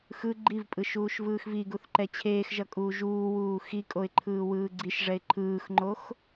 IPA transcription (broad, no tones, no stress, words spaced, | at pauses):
xɯ ɡ͡ǃivpʼɯ ʃuːʃvɯːxviɡuθ ǃɛt͡ɕʰeːxʒʌ kʼuːʒuːwuː xikʼoɪ̯ ǃʰɯːwɯːɡ͡ǀiʃʐɛɪ̯ ǃʰɯːxŋ͡ǃox